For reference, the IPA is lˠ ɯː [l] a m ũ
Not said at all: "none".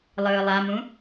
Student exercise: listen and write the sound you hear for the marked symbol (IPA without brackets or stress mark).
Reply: lˠ